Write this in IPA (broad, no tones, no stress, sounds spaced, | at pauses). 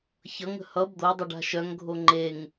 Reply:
ç ʌ ŋ ə̤ h ʌ b d̪ o dˤ o ɖ a̤ ʃ œ ŋ ɡʱ o ŋ͡ǃ e ŋ